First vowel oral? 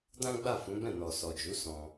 no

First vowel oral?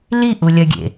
yes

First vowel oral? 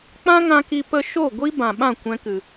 no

